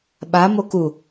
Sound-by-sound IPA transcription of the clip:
ɓ a m o k u

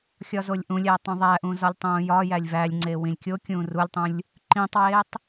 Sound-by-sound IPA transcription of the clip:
xʲ ɒ z o lʲ ʔ ũ lʲ æ tˤ ũ ðˤ æ ʔ ũ z ɒ lʲ tˤ õː j ɒ j æ lʲ v æ lʲ ŋ͡ǀ e w ĩ lʲ kʲ o kʲ ũː r u lʲ tˤ ũ lʲ | ǃ ĩː tˤ w eː tˤ

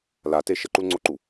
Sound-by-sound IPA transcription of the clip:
l a t e ʃ ə ǃ u l ŋ͡ǀ o ǃ u

